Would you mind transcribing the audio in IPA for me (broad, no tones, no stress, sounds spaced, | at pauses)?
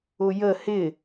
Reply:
ʊ j ə h ɪ